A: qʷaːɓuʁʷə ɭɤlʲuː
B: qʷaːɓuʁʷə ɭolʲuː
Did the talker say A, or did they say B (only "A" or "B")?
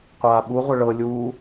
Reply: A